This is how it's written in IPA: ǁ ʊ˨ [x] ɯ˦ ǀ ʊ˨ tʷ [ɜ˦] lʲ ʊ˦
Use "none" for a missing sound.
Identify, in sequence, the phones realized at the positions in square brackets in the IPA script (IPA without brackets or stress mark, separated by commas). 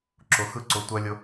x, ɜ˦